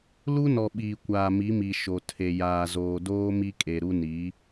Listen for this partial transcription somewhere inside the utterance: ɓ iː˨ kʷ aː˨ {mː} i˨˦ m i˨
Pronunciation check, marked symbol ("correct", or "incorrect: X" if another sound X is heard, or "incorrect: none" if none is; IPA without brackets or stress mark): incorrect: m